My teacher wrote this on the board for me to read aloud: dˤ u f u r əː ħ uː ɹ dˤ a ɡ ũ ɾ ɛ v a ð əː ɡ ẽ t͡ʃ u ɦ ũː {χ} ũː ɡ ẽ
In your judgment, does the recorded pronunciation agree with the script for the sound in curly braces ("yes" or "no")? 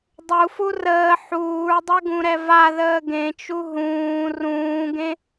no